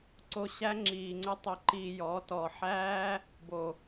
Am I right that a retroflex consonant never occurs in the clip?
yes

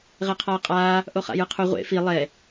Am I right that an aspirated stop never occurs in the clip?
no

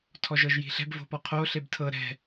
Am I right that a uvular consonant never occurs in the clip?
no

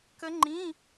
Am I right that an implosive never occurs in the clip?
yes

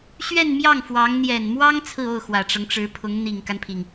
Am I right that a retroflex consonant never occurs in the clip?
no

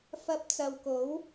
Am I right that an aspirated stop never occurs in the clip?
yes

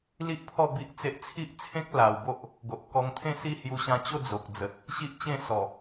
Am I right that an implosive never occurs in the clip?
yes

